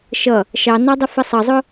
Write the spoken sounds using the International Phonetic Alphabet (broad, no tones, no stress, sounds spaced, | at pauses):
ʃ ʌ | ʃ ɑ n ɑ dˤ ə f ə sˤ ʌ zˤ ʊ